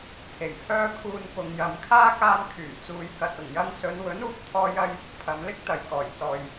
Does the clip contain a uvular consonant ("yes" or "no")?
no